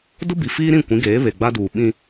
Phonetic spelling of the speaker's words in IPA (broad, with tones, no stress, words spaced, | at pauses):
dʊ˦bi˨ fiː˦ɾĩ˦˨ kʷĩ˨˦ɡeː˨˦ βe˨ɡ͡ba˦duː˨ ɓĩ˦